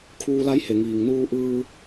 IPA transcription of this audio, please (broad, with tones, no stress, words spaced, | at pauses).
kʰuː˧la˧˥jhe˩ ŋiː˩ŋnuː˧ ʔɯː˧